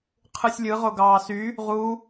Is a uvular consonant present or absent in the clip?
present